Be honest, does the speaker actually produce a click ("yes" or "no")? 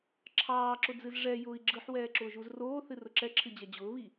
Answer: yes